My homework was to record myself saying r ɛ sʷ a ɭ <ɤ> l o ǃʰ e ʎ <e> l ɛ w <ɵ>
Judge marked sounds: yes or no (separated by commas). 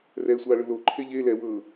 no, yes, no